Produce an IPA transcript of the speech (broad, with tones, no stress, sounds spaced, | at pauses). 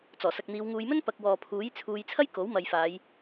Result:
t͡s ɔː˨˩ s ɐ˨ k̚ n̪ iː˨˧ w ŋ uː˨˧ j m ɵ˥ n p ɐ˨ k̚ w ɔː˨ pʰ uː˨˥ j t͡sʰ uː˧ j t͡sʰ ɐ˥ j k o˨˥ w m ɐ˨ j f aː˨˧ j